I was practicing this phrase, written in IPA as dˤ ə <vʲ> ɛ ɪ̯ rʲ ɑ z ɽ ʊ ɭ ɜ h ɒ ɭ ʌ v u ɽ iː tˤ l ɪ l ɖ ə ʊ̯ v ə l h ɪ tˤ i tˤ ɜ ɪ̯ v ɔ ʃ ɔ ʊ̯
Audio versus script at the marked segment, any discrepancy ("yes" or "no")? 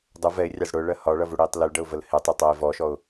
yes